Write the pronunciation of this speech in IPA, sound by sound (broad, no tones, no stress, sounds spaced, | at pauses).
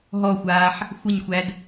ɦ ɔ xʷ aː ħ | xʷ ə ɲ xʷ æ d